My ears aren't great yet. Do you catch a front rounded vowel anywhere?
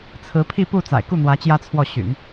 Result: yes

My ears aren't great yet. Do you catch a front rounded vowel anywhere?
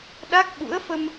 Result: no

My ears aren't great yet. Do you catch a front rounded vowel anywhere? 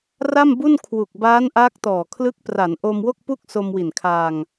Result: no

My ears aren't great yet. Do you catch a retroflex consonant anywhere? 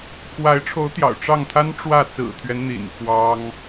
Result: yes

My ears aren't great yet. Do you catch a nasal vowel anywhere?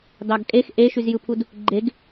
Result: no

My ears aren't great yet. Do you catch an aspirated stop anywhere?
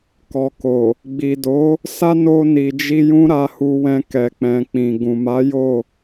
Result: no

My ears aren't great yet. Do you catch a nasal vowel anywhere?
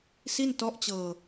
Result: no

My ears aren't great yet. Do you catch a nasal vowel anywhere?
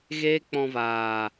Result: yes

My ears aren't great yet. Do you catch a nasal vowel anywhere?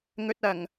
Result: no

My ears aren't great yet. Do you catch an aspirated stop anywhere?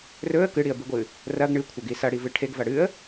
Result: yes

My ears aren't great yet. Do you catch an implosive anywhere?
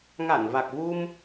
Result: no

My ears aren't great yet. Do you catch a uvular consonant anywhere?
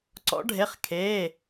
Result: yes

